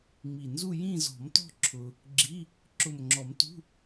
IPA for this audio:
ŋ͡m i˨˩ n z u˥˧ j ĩ˥˧ z ɔ̤˨˩˦ m t ɔ̤˥˧ ǁʰ ʊ˧ | ɡ͡ǁ i˧˥˧ | ǁ ʊ˨˩ m ŋ͡ǁ ɔ˨˩˦ m t ṳ˧˥˧

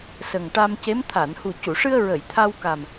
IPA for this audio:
s ə˨˩ ŋ ʈ a˧ m c e˧˥ m t̪ʰ a˨˩˨ n h u˨˩ c u˨˩˨ ʂ ɨ˧ ə̯ ɹ ə˨˩˨ j t̪ʰ a˧ w k a˨˩ m

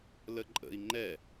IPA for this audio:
l ə ǃʼ ə̰ i̯ ŋ͡ǃ ɛ

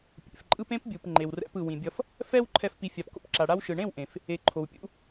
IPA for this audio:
pʲ ḛ˨ f ǃʼ ɯ˧ p ẽ˦ p bʲ u˨ p ŋ͡ǃ e˨ w r ɛ̰˧ p ɯ˨ w ĩ˨ bʲ ʌ˧ f | f ɛ˦ w ǃʰ ɛ˧ f p i˨ fʲ a˨ p k o̰˧ p ǁ a˨ ɽ a˧ w ʃ ɯ˨ ɳ ẽ˦˨ w ʔ ẽ˨ f | e˨ ǃʰ o˨ w pʲ ṵ˧

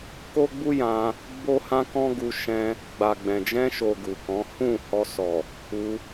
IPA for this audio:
k o˦ ɡ͡b u˦ j ã˧ | b o˦ h ã˦ k ɔ̃˦ ɡ u˧ ʃ ɛ̃˧ | ɡ͡b a˨ ɡ͡b ɛ̃˨ d͡ʒ ɛ̃˧ ʃ o˨ ɡ u˨ k ɔ̃˨˦ h ũ˦˨ h ɔ˧ s ɔ˨ | u˧

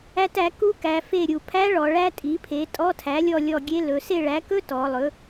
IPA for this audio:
æ˦˥ t æ˩˥ k u˦˥ k æ˩˧ f e˦˨ ɾʲ u˩˧ pʰ æ˦˥ ɭ ɔ˩˧ ɭ æ˦˥ tʼ i˩˥ pʰ e˩˥ tʼ ɔ˧˥˧ tʰ æ˩˥ lʲ ɔ˦˨ lʲ ɔ˦˨ ɡʲ e˦˥ l ɵ˩˧ s e˦˨ ɭ æ˩˥ k ɵ˦˥ t ɔ˩˧ lˠ ɵ˩˥

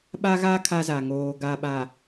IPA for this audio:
ɓ a˦ ɣ a˦ kʰ a˦ z a˨ ŋ oː˨ ɡ a˨ ɓ a˨

